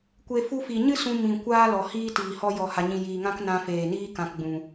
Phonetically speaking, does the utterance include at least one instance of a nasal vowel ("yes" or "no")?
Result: yes